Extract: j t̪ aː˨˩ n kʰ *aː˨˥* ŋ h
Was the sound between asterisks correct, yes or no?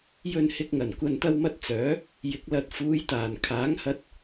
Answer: yes